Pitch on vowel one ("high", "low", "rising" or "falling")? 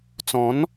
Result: rising